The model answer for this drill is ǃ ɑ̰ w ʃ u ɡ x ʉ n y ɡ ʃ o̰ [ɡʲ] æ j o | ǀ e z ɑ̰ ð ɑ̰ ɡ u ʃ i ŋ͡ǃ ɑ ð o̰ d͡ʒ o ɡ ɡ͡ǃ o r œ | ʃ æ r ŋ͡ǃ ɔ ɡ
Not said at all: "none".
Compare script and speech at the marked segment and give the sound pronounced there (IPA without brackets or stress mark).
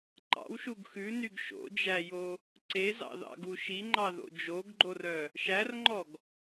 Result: d͡ʒ